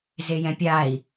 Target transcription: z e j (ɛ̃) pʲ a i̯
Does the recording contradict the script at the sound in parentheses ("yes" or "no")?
no